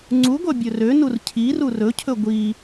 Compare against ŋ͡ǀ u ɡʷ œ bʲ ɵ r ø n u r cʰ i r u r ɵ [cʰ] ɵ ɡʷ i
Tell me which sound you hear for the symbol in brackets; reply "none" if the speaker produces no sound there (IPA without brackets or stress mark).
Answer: cʰ